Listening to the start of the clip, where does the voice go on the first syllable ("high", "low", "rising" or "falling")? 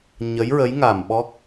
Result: rising